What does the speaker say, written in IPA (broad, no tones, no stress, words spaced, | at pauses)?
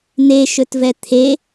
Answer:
n̪eʃɵtvɛ t̪ʰe